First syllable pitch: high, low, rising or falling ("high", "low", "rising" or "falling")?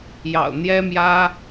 low